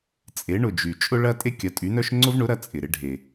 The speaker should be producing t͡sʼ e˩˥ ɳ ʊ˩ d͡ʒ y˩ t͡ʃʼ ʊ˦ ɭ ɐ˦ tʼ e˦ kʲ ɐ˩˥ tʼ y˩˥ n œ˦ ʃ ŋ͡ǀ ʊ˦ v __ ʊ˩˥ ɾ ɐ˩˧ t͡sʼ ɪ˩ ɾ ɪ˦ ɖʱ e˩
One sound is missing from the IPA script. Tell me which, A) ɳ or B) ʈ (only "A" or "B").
A